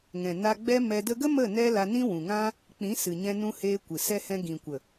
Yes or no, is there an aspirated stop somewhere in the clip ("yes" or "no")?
no